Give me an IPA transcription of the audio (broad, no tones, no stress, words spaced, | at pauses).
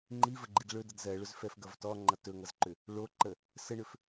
ŋ͡ǃivəɡ͡ǃid ɭɵdʌd zɜɭɵzfɛfɡʌv tɔŋ͡ǃʌ tɵŋʌzǃʏ | ɭoǃə | səɳʏf